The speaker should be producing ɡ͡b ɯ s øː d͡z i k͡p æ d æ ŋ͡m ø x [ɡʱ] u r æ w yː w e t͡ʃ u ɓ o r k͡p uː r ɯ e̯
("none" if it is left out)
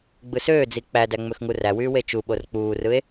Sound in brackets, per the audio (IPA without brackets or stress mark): ŋ